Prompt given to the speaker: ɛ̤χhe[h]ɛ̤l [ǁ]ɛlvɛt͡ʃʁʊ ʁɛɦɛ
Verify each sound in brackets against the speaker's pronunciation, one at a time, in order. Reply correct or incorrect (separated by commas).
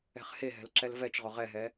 incorrect, correct